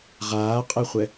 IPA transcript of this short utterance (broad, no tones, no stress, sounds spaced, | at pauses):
ʁ aː qʼ ɛ χʷ ɛ